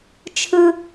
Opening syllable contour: high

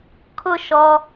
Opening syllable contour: falling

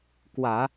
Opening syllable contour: low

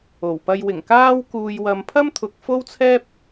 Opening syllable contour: low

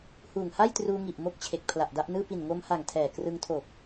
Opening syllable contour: low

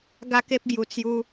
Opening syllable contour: high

